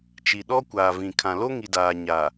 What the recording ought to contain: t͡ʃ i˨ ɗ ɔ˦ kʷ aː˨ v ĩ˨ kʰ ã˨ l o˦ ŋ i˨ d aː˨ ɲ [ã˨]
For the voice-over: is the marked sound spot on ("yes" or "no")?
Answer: no